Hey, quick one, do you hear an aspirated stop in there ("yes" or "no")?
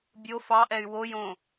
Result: no